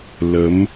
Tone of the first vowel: rising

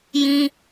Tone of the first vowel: high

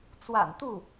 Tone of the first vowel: low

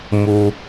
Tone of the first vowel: high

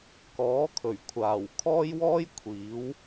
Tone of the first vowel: rising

